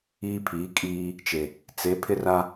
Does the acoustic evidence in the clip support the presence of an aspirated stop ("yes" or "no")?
yes